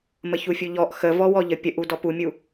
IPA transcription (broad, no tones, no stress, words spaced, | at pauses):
məçufʲuʎɔʔ xəvɔwɔʎə pʲəʔu dɔpumʲu